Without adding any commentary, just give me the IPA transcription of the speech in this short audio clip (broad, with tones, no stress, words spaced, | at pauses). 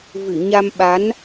vɨ˧˩ɲa˧mɓa˨˦n